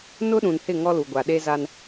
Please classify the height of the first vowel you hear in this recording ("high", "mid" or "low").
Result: high